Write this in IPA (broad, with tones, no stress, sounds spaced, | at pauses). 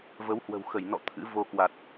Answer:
v ə˨˦ w h w ə̤˨˩ w x ə˧˩ j n ɔ̰˧˨ t̪ʰ ɨ̰˧˥ v o˧ k w a˨˩ t̚